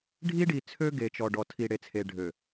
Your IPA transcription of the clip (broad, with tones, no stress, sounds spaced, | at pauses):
ɖʱ i˦ ɖ i˨ t͡sʰ ø˦ ɡ e˨ t͡ʃ ɔ˨ ɖ ɔ˨ tʰ i˨ ɽ e˨ t͡sʰ e˨ ɖʱ ø˨